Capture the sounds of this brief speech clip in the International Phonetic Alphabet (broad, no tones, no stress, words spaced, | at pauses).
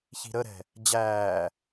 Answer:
çi̤ɾəɾɛ̤ | d͡ʑæː